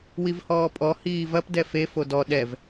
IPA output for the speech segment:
w i v h ɔː pʼ ɔ h iː v ɐ p d ɛ f e f o d ɔ ɗ ɛ v

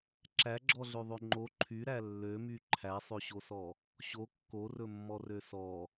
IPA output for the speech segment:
ǁ æ ɡ͡ǁ ɔ ɮ ø ðˤ ø ŋ͡ǃ o ǃʰ y ɾ æ lː ø m y ǃʰ æ sˤ ø ɕ o s ɔ | ɕ o kː o r ɵ mː ɔ r ø s ɔ

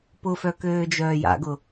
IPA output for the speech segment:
p ʊ f œ k øː d͡ʒ œː j a̰ ɡ ʊ

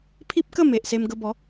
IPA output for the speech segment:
pʰ i˦ p̚ k ə˥˧ m e˨ ʔ s e˧ m ɡ ə˧ b ɔ˨˦

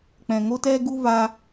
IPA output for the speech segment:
k͡p ɛ̃˨ ŋ o˦ t ɛ˦ ɡ u˦ v a˦

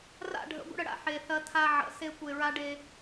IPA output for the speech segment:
r a̰˦˨ ɖʱ ə̰˨˦ ɡʷ ə̰˦ ɽ ə˨ ɽ a̰˦ ħ e˨ θ ɐ˦ tʰ a˦ ʕ ə̰˨˦ s e˦ kʷ e˨ ɹ a˦ ɖ e˦

